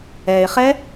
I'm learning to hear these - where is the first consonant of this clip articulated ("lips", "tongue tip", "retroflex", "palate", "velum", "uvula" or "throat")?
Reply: uvula